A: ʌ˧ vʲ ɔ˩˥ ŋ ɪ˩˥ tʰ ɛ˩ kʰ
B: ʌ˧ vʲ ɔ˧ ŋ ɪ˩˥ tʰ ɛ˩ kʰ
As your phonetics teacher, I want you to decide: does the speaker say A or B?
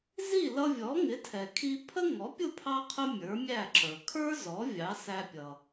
A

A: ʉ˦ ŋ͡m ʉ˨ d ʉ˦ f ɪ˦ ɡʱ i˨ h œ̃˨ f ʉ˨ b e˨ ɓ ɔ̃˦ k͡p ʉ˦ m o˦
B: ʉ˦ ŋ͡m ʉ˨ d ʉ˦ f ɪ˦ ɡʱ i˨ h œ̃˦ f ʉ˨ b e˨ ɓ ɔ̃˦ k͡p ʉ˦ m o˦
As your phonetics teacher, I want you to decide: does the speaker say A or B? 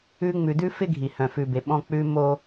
A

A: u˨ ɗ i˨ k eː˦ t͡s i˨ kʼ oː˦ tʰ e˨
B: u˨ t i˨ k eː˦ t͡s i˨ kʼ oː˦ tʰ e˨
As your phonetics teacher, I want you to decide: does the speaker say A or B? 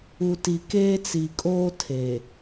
B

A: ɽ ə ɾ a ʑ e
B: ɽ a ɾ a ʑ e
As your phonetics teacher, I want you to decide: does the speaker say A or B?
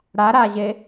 B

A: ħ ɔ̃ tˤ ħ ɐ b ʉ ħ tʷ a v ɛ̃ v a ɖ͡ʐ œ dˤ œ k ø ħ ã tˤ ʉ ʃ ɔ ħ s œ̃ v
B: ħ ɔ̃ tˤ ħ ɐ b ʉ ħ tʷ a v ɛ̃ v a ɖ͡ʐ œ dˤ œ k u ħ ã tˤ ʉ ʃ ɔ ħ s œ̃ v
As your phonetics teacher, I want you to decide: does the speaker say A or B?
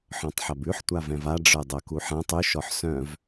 B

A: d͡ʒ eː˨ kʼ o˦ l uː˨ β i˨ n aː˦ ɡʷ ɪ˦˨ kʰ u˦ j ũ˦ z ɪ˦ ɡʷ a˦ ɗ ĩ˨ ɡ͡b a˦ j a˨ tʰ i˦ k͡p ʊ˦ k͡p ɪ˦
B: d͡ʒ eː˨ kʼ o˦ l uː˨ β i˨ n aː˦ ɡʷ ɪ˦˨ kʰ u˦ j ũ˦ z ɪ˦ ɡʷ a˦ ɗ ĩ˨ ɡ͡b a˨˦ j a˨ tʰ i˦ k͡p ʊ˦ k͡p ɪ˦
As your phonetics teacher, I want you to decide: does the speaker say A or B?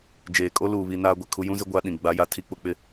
B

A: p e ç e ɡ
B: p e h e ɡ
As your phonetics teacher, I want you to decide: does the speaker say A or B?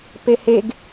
B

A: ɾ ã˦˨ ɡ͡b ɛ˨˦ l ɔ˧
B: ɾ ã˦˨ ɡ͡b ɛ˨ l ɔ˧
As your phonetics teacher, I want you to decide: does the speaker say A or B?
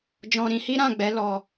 A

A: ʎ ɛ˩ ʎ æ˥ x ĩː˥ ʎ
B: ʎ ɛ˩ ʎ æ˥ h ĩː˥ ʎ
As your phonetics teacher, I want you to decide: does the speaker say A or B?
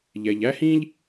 B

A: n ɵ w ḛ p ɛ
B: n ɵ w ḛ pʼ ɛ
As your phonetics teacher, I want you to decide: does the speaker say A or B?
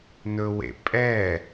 B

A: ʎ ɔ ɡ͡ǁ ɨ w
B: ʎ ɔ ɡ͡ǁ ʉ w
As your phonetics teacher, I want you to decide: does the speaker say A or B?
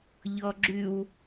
B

